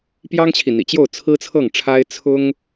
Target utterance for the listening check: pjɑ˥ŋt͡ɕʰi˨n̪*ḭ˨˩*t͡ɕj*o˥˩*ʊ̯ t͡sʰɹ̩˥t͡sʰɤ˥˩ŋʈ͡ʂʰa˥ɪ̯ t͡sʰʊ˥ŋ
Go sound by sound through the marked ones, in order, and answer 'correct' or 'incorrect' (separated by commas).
correct, correct